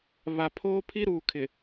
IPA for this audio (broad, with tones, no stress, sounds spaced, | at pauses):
β a˨ pʰ oː˦ pʰ i˦ ɾ uː˨ kʰ ɪ˨